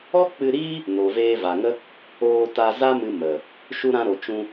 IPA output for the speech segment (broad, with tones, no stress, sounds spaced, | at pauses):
ɔ˦ k͡p ɨ˧ ɾ iː˦ | n o˨ v eː˧ v a˨ ŋ ə˦ | oː˧ t a˧ z a˦ m ɨ˧ m ə˨ | ʃ u˧ ɾ ã˧ ɾ o˨ t͡ʃ ũ˧